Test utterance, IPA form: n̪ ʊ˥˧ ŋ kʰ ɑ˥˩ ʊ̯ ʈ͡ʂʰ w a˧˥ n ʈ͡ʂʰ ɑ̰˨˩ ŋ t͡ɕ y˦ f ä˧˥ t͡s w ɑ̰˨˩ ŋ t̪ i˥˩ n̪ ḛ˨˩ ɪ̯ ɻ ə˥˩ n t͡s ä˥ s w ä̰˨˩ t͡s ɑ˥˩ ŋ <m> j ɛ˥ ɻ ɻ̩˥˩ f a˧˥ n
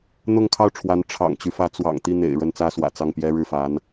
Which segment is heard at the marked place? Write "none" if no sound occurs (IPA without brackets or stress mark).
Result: p